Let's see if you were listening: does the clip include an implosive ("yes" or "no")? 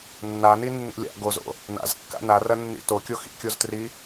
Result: no